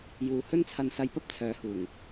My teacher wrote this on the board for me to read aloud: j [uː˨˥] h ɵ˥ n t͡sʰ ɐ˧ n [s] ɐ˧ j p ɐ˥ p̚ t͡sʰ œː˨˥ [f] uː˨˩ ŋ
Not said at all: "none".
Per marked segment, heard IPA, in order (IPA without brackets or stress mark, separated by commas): uː˨, s, h